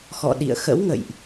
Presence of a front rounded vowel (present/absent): absent